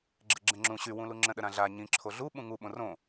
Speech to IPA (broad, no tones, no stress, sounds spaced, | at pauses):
ɡ͡ǁ ə ɡ͡ǁ ə̃ ŋ͡ǁ ũ ɕ y w ũ l u ŋ͡ǁ ə̃ ɗ ə ɾ ã ɮ a ɲ ĩ ǁʰ o ɮ u ɓ ũ ŋ u ɓ õ r õ